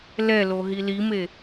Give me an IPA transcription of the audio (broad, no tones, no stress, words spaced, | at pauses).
lɛlo ɦilime